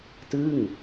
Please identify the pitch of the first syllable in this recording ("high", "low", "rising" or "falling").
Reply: falling